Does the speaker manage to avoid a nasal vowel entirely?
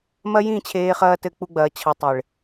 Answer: no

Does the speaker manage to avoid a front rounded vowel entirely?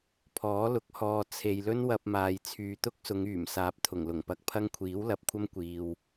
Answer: no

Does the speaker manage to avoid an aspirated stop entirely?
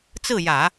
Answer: yes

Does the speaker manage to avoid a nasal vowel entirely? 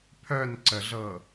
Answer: yes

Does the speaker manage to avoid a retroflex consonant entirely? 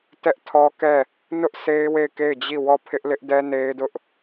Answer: yes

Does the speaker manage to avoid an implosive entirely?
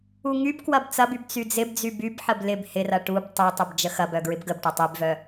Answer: yes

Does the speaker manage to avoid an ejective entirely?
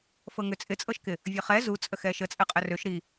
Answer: no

